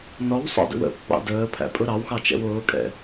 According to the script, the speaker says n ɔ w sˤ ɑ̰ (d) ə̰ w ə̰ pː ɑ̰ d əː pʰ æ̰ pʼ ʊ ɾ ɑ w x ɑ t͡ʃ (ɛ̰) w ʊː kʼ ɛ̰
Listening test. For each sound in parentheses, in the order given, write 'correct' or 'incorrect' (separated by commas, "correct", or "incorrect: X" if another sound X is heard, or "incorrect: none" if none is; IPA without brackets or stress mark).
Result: correct, correct